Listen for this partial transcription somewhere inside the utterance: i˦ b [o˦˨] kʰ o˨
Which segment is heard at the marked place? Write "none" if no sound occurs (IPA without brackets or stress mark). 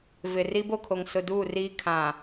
o˦˨